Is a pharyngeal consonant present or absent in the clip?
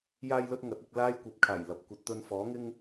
absent